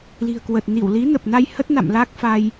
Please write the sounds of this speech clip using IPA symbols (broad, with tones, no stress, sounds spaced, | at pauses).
l i̤˨˩ ə̯ k w ə˨˩ t̚ n i˧˩ w l i˨˦ n ə˨˩ p̚ n a˧ j h ə˦˥ t̚ n a̰˧˨ m l a˦˥ k̚ f a˧ j